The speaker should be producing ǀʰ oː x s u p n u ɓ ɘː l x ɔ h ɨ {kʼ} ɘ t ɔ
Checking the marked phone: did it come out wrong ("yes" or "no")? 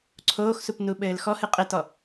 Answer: yes